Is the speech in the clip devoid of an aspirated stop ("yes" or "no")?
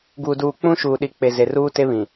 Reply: yes